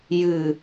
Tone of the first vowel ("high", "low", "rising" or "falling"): low